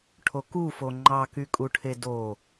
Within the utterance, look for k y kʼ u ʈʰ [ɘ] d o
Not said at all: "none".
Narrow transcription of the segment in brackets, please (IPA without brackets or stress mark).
e